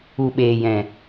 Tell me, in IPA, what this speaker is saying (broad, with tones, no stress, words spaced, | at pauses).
u˨ɓeː˨jɛ̃˨